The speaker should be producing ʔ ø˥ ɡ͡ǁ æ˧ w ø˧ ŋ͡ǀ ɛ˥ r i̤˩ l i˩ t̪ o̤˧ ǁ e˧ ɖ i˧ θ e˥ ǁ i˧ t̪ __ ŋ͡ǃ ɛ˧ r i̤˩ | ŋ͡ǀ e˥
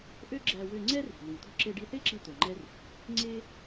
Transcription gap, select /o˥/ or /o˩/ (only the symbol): o˩